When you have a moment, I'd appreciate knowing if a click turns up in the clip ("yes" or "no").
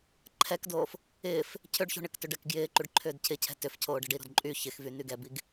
yes